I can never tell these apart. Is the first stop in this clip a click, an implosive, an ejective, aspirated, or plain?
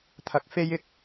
aspirated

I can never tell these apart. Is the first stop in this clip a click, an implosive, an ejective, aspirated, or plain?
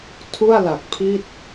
aspirated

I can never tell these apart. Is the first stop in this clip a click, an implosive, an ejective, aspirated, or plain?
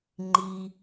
click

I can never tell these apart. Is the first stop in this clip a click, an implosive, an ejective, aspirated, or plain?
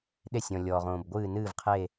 implosive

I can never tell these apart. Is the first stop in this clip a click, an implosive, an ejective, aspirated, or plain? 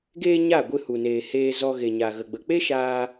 plain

